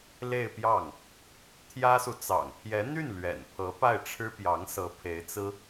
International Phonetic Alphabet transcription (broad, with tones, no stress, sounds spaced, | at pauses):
l e˥˧ ɪ̯ p j ɑ˥˩ ŋ | t̪ʰ j ä˥ s u˨ t͡s ɑ̰˨˩ ŋ pʰ j ɛ˧˥ n̪ y˥˩ n l ɥ ɛ̰˨˩ n pʰ ɤ˧˥ p a˥˩ ɪ̯ ʈ͡ʂʰ ɻ̩˥ p j ɑ˧˥ ŋ s ɤ˧˥ pʰ e˧˥ ɪ̯ t͡s ɹ̩˥